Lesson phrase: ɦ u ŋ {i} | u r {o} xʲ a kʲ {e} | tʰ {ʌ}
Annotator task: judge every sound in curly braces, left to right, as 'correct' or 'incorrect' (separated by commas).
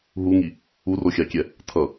correct, correct, incorrect, correct